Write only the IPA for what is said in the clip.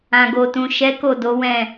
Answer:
ã˨ɡo˨tũ˨ʃɛ˨˦ ko˦˨do˨˦wɛ̃˦˨

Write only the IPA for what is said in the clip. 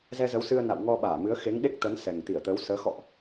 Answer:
zɛ˧zə˨˦wsɨ˧ə̯ na̰˧˨wŋɔ˧ɓaː˧˩mɨ˨˦ə̯ xe˨˦ŋ ɗe˦˥k̚t̪ə˨˦n sɛ˨˩ŋt̪i˧˩ə̯t̪əː˨˦wsəː˨˦ xɔ̰˧˨ʔ

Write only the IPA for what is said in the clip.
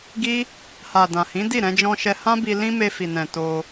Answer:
ɡi˦ | ha˨ dã˨hĩ˨˦ di˦˨ɾɛ̃˧ d͡ʒɔ̃˧ʃɛ˧ hã˦bi˧ lĩ˦ me˧fi˨nɛ̃˨ to˧

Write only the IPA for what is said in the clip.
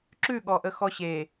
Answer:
ǁʉɠɔʔə xɔɕe

